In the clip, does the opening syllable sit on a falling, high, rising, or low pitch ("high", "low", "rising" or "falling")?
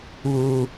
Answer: low